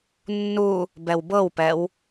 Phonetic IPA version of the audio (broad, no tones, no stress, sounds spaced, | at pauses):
nː u | b ɛ w b ɤ w p ɛ w